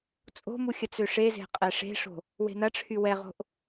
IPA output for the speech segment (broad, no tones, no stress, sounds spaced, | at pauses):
t͡sʼ o̤ m u xʲ ə t͡s ø ʂ e z e̤ qʼ ɛ ʂ e̤ ʂ o̤ | w e̤ n ɐ ʈ͡ʂʰ y w ɛ ʁ o̤ ʔ